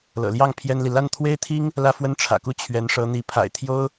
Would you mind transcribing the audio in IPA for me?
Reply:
l ɤ̰˨˩ l j ɑ˥˩ ŋ pʰ j ɛ˥ n l i˨ l a˥˩ n t̪ʰ w e˥ ɪ̯ t̪ʰ i˥ ŋ | l ä˥ f w ə˥˩ n ʈ͡ʂʰ ä̰˨˩ k u˥ t͡ɕʰ ɥ ɛ˧˥ n ʂ ɤ˧˥ n̪ i˧˥ pʰ a̰˨˩ ɪ̯ t̪ʰ j o˥ ʊ̯

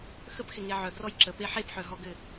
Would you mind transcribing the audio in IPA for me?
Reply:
x ə p x ɪ ŋ e ʕ œ ɡ r ɔ j ǁ ə p e ħ e p ħ œ ɦ ɔ ɡ ɘ

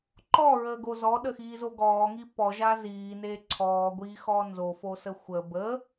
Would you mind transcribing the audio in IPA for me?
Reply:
ǃ ɔ ɹ əː ɡ o z ɔ ɗ ə x iː z o ɡ ɔː ŋ i p ɔ ʒ a z iː n e ǀʰ ɔː ɡʷ iː x ɔ n z o f o s ə xʷ ə b ə

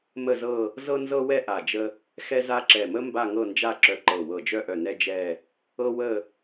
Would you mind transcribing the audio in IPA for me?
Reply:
m ə˥˧ z ɤ˥˧ | z ɤ˥ n z ɤ˥ w ɛ˥ ʔ a˧˩ d͡ʒ ə˥ | x ɛ˥ z a˥ ǁ ɛ˧˩ m ə˥ m b a˥˧ ŋ ɤ˥˧ n d͡ʒ a˥˧ ǁ œ˧˩ ǃ ɤ˧˩ w ɤ˧˩ d͡ʒ œ˥˧ ʔ œ˧˩ n ɛ˥ d͡ʒ ɛ˥˧ | ɤ˥ w ə˥˧

